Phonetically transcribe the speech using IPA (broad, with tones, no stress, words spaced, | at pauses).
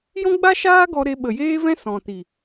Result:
jɔ̃˦ɡ͡ba˦ʃaː˦ɡɔ˧ ɾe˧ɓə˨jeː˦vɛ̃˦ sɔ̃˨ti˨